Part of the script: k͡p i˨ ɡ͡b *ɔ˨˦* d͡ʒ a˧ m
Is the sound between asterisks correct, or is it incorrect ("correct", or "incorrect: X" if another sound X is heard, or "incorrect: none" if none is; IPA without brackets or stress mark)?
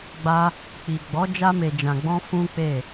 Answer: correct